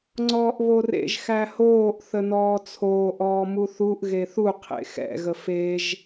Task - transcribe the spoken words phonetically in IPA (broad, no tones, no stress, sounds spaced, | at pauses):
ŋ͡ǀ ɔː ʔ β o r ḛ ʒ x æ h oː ʔ θ ə n ɔː t͡sʰ oː ʔ ɔː m u θ u ʔ ɣ e θ u qʰ ḛ x ɛ̰ ɣ ə f e ʒ